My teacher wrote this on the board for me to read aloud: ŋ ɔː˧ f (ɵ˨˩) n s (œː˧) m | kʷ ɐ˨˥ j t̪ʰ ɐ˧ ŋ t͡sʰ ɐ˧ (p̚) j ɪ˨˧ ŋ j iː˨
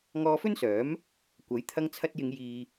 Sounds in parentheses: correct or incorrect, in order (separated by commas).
incorrect, incorrect, incorrect